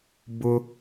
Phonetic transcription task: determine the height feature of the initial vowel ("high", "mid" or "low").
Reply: high